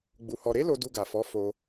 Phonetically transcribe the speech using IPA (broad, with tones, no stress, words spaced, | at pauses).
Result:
ɡ͡bu˧hɔ˧ ɾe˦lo˧ du˧ɡa˨fɔ˨˦ fo˧